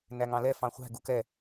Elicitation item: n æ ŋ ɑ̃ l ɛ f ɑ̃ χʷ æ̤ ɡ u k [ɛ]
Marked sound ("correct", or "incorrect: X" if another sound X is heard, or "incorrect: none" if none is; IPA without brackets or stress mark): correct